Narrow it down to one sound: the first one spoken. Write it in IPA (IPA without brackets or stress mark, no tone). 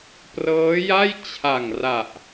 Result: p